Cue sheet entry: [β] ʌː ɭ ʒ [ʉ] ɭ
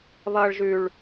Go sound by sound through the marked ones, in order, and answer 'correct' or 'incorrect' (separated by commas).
correct, correct